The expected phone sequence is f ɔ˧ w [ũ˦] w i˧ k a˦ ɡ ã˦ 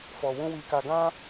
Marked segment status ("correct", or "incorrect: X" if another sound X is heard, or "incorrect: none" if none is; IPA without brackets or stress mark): correct